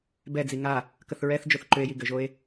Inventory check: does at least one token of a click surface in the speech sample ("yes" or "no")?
yes